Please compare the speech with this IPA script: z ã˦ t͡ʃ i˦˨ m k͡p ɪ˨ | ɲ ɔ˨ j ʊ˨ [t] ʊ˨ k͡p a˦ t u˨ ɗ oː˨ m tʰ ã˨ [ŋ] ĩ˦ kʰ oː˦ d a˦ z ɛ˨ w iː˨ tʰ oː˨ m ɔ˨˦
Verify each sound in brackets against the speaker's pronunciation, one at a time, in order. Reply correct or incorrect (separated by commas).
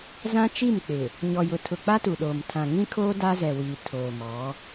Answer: incorrect, correct